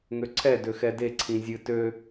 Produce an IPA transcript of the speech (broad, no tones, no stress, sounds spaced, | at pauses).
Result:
ŋ ø ǀʰ ɛ d ø x ɛ d e ǀʰ ĩ zʲ ɨ t ø